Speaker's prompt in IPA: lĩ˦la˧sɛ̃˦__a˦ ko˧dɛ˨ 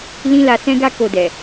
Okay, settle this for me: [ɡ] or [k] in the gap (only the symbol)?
ɡ